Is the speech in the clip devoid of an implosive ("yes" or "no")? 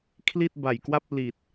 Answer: yes